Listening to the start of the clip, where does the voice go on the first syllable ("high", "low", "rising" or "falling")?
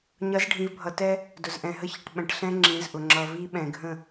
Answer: rising